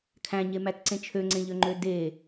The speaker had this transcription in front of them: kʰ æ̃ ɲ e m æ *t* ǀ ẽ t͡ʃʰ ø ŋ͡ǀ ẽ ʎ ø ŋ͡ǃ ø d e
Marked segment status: correct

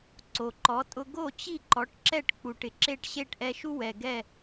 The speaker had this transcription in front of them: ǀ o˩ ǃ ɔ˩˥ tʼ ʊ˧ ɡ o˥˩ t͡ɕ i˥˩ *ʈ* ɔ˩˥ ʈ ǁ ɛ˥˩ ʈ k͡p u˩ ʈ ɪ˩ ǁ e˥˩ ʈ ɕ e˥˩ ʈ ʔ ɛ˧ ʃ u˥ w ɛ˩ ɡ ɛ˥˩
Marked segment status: incorrect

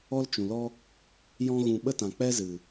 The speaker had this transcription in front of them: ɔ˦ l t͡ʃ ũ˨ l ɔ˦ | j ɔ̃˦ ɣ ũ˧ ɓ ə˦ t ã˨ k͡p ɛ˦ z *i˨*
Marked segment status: incorrect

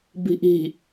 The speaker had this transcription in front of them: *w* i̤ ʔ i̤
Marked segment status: incorrect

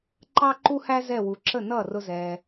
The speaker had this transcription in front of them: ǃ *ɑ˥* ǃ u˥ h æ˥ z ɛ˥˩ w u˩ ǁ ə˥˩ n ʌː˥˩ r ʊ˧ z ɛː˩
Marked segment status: correct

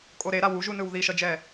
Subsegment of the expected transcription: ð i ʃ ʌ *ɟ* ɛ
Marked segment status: incorrect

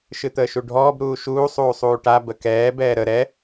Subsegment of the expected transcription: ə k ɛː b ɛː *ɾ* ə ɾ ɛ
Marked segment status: correct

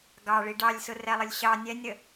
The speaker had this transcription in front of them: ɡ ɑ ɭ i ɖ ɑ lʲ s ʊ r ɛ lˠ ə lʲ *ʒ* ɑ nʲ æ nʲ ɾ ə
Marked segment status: incorrect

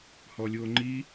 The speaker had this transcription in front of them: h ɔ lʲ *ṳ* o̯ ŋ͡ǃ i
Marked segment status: incorrect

